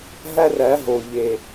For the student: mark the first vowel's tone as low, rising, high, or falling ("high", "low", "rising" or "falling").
high